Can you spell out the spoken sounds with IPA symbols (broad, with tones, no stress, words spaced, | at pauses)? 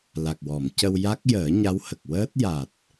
la˨˩k̚wɔ˨˩˨mcə˧w ja˦˥k̚jəː˨˩˦ ɲa˧˥whə˨˩k̚wəː˦˥t̚ ja˨˩t̚